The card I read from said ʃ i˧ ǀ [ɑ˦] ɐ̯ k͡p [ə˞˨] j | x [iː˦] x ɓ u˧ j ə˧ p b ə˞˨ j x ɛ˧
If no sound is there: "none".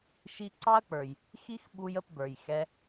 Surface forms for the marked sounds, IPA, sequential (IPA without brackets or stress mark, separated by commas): ɑ˦, ə˞˨, i˦